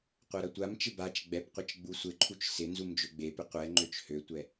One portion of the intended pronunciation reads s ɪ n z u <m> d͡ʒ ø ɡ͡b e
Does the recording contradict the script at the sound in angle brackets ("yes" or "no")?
no